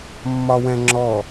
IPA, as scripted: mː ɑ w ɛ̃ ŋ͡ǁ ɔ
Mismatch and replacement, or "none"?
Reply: ɑ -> ɒ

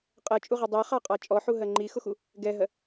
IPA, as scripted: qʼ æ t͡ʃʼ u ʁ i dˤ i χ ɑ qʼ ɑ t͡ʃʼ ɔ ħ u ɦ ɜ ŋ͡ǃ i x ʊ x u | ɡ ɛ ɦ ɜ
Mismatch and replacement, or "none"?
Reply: æ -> ɜ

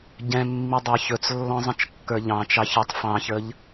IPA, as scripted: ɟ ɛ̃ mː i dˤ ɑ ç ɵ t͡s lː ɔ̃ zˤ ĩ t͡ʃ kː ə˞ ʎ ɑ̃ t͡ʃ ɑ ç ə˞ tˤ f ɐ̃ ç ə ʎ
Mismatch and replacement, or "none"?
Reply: ɐ̃ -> ɑ̃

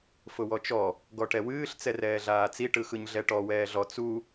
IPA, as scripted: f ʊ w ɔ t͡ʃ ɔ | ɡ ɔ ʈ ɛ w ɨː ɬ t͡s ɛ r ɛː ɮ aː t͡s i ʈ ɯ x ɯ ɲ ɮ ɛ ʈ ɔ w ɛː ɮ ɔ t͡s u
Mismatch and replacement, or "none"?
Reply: none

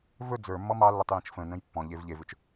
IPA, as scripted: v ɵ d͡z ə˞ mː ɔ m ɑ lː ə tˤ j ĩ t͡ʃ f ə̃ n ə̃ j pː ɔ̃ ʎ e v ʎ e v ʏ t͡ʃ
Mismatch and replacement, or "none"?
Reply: none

